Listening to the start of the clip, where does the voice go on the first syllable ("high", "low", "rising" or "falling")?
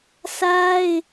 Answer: high